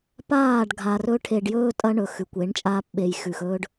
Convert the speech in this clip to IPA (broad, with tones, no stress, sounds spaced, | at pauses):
p aː˦˨ ɖ ɡʱ a˨ r ɵ˦ ʈʰ e˨ ɖ j ɵː˦ tʼ ɐ˦ ɳ ɵ˨ x ʉ˨ kʷ e˨˦ ɳ t͡ʃʼ aː˦ p ɓ e˨ j x ʉ˨ x ɵː˦ ɖ